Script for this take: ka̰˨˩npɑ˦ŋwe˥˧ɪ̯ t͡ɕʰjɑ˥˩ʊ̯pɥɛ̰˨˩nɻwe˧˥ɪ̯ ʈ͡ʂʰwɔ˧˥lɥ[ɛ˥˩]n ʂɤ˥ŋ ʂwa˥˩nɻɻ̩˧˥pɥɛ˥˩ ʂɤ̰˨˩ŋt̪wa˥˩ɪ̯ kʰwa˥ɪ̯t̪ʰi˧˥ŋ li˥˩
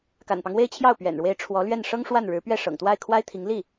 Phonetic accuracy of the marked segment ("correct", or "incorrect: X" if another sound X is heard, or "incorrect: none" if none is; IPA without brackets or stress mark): correct